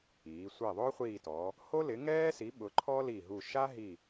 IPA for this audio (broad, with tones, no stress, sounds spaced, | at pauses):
iː˩˧ sʷ ɛ˦˨ ðˤ ʊː˥ χʷ iː˦˨ t ɔ˩˧ | h o˥ l ɪ˨˥ ŋ ɛː˥ s i˨˥ ɓ ʊ˨˥ ǃʰ ɔ˥ l i˦˨ ɦ u˦˨ ʃ a˥ ɦ i˦˨